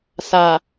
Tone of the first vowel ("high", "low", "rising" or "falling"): low